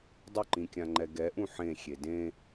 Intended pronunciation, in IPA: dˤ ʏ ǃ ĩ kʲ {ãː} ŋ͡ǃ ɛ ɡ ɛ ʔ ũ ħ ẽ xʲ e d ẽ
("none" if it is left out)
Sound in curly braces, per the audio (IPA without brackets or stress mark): ã